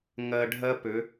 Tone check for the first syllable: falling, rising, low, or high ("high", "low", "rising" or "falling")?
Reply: low